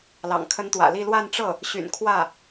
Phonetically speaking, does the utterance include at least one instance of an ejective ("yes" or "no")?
no